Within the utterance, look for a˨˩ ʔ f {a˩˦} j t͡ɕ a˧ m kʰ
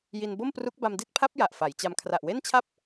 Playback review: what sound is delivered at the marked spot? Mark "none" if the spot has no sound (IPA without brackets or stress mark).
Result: a˩˦